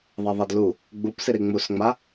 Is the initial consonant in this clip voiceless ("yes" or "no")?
no